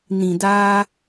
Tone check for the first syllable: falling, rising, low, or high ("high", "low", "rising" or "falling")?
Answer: low